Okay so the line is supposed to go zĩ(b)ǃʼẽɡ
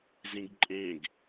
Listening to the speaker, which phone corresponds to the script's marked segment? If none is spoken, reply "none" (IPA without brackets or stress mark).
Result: ɡ